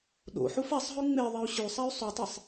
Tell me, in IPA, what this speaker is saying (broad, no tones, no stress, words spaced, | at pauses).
ɗo̰ ħufasˤɦʉ ŋ͡me ðˤɛu̯ɕʉsˤay̯ sˤutˤesˤ